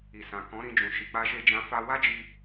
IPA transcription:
i˨ s ã˨ k ɔ̃˨˦ ɾ ĩ˧ d͡ʒ ũ˨ ʃ i˨ k͡p a˧ ʃ e˧ d͡ʒ ã˧ f a˦ w a˦ d͡ʒ i˧

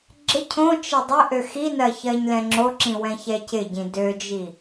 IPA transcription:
ɡ͡ǁ ɪ cʰ õ t͡ʃ ɪ dˤ ɪ ʔ ø x i n ɜ ç ɜ ɲ l ɛ̃ ŋ͡ǁ o ǁ ĩ w ɛ̃ ç ɛ c ɪ ɟ ĩ d ø d͡ʒ i

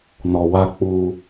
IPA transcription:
n ɔ˨ w a˦ k͡p uː˦

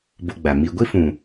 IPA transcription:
b o˧ ɡ͡b a˨ m i˧ ɡʷ i˦ f ũ˨

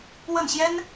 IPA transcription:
w ə˥˩ n ɕ j ɛ˥ n

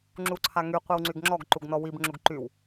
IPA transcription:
ŋ͡ǁ u ǀʰ a ŋ y qʷ i w ŋ͡ǀ y ɡ ŋ͡ǁ ɔ ɡ ǃ u ɡ n ɔ w i b ŋ͡ǁ u ɡ ǃ y w

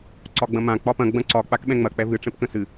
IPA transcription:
ǀ ɒ ɡ͡b ɐ̃ m ã k͡p ɒ p ɐ̃ ɡ͡b ɐ̃ ǀ ɒ k͡p a k ɓ ɛ̃ ŋ͡m ɐ k͡p ɛ v ɨ ʈ͡ʂ ɛ̃ p k ə̃ s ɨ

